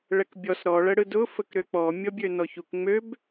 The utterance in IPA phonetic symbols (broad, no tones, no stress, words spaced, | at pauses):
ɭɛkbʲɔs ɾɔ ɭəɽɯdʊ fəkɾøk͡pɔ mʲɔbʲønɔçuk ŋ͡møb